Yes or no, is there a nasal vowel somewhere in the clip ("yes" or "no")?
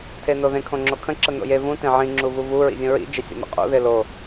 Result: yes